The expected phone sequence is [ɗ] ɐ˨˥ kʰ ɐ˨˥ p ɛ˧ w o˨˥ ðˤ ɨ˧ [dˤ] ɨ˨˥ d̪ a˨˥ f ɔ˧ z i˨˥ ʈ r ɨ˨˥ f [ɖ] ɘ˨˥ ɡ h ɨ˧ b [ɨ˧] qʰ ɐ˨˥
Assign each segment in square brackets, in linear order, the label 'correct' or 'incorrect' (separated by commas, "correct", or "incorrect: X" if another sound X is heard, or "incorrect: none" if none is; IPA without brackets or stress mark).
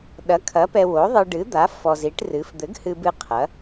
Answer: correct, incorrect: ɖ, incorrect: d̪, correct